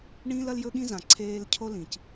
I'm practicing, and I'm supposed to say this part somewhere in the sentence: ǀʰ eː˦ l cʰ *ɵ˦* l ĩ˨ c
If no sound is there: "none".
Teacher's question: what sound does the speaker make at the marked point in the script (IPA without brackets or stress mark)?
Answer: o˦